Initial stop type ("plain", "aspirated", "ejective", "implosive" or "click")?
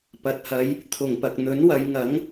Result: plain